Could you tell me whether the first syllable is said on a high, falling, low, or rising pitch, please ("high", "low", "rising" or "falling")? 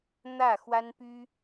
falling